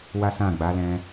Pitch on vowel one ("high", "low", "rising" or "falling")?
high